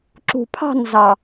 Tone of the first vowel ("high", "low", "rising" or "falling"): low